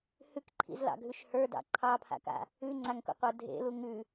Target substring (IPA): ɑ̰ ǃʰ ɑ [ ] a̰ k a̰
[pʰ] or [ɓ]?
pʰ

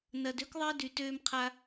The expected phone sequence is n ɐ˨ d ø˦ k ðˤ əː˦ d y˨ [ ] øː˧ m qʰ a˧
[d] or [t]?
t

